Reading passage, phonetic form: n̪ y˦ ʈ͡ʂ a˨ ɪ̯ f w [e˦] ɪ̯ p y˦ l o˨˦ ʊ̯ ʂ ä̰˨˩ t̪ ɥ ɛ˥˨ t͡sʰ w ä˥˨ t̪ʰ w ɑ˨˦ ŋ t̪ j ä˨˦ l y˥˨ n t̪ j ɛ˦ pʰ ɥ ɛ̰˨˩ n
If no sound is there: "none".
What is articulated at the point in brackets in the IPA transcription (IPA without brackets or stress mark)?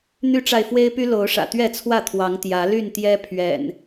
e˦